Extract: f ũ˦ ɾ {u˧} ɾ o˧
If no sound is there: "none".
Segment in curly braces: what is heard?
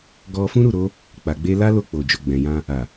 u˦˨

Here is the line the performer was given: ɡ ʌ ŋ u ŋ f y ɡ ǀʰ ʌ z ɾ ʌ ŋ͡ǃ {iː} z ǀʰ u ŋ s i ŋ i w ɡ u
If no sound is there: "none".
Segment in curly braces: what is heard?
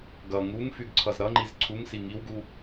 i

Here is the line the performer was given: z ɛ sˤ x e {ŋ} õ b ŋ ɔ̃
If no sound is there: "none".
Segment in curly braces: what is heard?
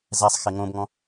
ŋ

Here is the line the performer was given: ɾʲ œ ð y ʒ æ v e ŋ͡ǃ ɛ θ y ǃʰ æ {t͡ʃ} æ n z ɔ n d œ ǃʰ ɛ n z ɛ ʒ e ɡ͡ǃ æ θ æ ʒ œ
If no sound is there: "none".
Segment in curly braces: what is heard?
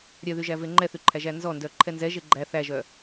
ʒ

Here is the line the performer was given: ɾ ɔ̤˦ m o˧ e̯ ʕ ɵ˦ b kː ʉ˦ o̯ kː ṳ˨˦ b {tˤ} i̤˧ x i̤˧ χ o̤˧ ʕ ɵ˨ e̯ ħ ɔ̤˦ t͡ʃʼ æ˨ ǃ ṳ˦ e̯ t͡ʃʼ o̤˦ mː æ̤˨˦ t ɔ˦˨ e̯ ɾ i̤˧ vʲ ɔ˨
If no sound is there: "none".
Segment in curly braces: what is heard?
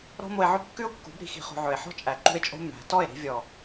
ɾ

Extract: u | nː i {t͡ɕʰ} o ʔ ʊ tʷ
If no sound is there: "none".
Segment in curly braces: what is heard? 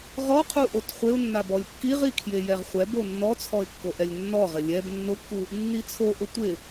t͡sʰ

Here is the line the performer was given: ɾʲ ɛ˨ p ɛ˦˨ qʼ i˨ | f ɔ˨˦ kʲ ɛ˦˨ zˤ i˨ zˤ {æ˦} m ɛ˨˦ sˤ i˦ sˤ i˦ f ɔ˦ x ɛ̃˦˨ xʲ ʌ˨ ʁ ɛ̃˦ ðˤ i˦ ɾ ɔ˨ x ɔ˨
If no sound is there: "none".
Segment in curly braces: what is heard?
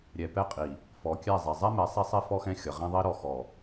ɛ˦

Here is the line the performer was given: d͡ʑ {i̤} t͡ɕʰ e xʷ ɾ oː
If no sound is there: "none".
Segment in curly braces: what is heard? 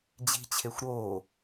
i̤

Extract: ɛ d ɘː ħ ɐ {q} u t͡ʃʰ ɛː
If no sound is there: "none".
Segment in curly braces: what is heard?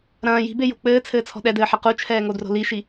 q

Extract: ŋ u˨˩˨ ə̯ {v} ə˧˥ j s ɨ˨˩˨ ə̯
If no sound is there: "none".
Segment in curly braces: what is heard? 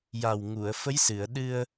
f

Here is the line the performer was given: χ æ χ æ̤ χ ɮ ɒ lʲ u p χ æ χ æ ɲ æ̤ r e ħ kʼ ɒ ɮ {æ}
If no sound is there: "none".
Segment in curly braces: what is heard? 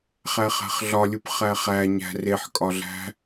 æ̤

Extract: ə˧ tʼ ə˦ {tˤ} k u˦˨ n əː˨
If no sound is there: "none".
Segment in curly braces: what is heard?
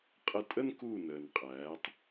n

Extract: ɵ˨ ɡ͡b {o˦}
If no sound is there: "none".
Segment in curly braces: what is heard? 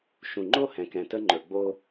o˦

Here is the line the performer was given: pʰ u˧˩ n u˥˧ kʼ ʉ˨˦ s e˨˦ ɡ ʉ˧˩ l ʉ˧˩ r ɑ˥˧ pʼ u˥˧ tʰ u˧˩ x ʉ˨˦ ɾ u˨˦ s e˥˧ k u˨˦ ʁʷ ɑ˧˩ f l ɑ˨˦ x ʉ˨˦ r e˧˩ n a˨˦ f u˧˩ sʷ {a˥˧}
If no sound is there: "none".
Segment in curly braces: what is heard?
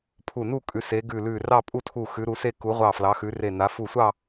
ɑ˥˧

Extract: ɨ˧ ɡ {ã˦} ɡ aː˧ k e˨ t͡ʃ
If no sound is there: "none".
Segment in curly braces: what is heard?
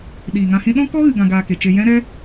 ã˧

